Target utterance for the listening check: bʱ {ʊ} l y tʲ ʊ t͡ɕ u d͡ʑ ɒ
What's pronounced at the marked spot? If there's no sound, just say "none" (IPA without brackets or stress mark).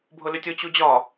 ʊ